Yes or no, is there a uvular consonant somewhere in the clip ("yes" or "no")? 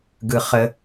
yes